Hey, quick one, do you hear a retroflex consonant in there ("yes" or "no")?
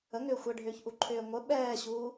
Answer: yes